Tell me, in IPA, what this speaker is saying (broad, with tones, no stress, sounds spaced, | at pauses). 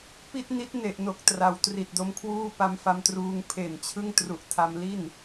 p i˥˩ t̚ n i˦˥ t̚ n e˨˩ ʔ n o˨˩ k̚ t r a˩˦ w t r i˨˩ t̚ d o˦˥ m kʰ w uː˥˩ p a˧ m f a˧ m t r uː˧ ŋ pʰ e˨˩ n t͡ɕʰ ɯ˥˩ ŋ t r u˨˩ ʔ tʰ a˧ m l i˥˩ n